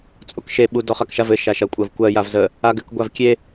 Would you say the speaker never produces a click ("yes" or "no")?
yes